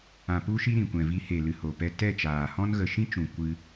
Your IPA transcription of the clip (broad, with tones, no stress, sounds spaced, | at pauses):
ã˨ p u˧ ʃ i˧ ɾ ĩ˨ kʷ ɛ̃˨ v i˧ h e˨ l ɨ˨ h o˨ p ɛ˧ t ɛ˦˨ t͡ʃ aː˨ h ɔ̃˦ n ɣ ə˨ ʃ ĩ˦ t͡ʃ ũ˨ kʷ ɨ˧